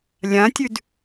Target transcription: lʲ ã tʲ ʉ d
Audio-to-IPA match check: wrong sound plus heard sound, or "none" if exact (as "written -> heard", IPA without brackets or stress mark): none